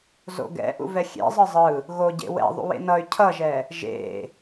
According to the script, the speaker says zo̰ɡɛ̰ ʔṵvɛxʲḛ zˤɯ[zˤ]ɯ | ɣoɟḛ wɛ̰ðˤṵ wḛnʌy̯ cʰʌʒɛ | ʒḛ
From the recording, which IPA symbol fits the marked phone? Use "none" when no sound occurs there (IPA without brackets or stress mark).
zˤ